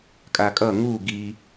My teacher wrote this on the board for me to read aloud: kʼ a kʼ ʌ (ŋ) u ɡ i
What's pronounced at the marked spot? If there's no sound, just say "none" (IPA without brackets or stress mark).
ŋ